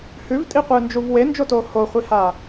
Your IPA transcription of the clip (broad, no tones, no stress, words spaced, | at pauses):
hʉvtʼiqʷɨːnd͡ʒuv wend͡ʒotoː hoχʷiha